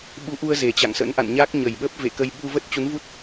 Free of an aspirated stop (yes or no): yes